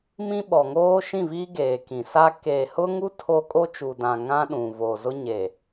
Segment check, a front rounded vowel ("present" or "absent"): absent